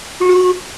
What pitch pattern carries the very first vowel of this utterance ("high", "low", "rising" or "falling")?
high